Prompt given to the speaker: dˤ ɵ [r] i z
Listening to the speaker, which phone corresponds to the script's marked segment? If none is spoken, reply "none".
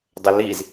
l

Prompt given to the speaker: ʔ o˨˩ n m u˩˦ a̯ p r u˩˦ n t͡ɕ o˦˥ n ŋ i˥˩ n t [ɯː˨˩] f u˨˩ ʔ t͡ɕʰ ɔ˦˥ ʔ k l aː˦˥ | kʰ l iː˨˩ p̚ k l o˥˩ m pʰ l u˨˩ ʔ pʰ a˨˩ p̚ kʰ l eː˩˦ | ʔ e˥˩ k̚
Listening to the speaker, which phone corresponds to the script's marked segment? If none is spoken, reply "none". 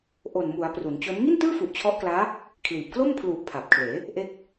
ɯː˥˩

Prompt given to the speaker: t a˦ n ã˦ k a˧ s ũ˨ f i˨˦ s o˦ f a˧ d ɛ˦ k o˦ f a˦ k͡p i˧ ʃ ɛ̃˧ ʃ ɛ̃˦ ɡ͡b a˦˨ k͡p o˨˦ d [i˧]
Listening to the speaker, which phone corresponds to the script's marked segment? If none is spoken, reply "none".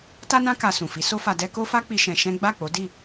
i˦˨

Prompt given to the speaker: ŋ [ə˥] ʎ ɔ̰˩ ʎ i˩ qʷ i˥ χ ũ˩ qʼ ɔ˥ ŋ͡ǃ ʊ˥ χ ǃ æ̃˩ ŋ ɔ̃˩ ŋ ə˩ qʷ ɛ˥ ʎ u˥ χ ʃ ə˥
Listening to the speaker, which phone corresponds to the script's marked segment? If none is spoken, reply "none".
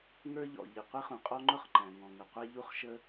ə˞˥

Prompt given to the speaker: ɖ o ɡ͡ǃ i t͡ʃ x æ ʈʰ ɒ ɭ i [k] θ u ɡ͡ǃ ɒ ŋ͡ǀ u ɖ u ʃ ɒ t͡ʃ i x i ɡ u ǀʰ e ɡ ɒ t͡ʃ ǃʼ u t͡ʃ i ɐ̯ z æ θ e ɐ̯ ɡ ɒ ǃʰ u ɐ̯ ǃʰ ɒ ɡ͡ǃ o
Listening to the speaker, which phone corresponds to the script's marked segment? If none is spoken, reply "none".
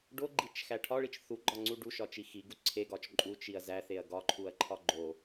t͡ʃ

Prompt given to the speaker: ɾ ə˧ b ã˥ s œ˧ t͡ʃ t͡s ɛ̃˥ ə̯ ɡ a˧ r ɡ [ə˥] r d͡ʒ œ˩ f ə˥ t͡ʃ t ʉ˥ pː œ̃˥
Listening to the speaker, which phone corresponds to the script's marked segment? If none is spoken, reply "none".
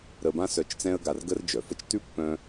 ə˥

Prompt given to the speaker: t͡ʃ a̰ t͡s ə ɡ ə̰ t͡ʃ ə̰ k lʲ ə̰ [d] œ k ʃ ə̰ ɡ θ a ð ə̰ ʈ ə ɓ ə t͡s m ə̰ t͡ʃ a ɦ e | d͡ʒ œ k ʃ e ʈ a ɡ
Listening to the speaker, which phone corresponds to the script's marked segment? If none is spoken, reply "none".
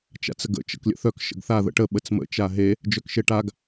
θ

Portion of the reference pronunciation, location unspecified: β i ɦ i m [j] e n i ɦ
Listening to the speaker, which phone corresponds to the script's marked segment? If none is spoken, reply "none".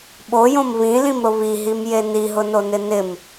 j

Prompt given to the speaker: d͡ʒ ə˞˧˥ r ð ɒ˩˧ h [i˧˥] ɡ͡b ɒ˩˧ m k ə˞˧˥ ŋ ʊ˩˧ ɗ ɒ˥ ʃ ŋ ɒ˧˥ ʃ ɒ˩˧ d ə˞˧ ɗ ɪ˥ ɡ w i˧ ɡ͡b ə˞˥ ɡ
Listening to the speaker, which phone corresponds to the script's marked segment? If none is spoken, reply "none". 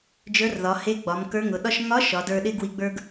e˧˥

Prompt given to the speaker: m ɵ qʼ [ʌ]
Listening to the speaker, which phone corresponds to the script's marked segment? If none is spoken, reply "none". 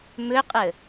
ə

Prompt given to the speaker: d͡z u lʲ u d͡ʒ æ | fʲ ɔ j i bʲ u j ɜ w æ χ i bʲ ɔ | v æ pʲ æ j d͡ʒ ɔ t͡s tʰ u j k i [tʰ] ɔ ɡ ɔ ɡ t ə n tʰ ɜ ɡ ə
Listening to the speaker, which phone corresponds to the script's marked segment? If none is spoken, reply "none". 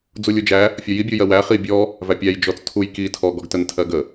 tʰ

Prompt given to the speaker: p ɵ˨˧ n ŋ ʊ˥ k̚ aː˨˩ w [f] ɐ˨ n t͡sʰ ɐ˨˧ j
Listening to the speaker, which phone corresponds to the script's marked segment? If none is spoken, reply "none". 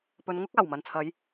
m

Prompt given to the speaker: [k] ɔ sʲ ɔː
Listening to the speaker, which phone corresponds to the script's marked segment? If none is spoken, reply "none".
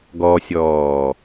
ɡ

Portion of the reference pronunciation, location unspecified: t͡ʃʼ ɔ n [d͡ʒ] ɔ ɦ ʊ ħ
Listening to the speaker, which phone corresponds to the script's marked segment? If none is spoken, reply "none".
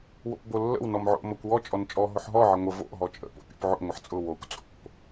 t͡ʃʼ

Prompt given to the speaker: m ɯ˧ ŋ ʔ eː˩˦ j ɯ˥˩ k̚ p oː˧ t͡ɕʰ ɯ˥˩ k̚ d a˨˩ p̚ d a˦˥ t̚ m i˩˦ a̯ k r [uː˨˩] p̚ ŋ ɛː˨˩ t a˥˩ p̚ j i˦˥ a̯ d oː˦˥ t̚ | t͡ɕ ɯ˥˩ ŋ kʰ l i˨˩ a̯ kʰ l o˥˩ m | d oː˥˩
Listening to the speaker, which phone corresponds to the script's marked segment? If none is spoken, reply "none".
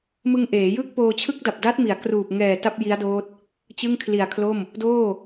uː˨˩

